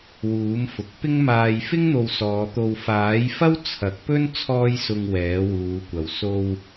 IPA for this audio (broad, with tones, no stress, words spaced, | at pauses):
wuː˨˥mfʊ˨k̚ pɪ˥ŋmaː˧j fɪ˥ŋ n̪o˧wsɔː˨˧t̪o˧w faː˨˥jfɐ˥w t͡sʰɐ˨˥k̚pɵ˥n t͡sʰɔː˥jsʊ˧ŋ wɛː˨˥wuː˨˧kʷɐ˨w so˧w